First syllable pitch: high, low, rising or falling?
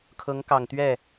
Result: rising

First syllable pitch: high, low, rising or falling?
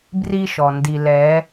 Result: high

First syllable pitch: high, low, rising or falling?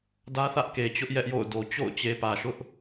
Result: high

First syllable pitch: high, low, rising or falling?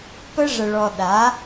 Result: high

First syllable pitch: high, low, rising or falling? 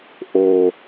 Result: low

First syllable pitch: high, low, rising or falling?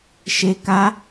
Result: low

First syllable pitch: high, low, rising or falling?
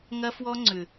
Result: high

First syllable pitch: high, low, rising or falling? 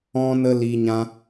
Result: high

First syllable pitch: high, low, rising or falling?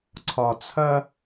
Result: low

